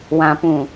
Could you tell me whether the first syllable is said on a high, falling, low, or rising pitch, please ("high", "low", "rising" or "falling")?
low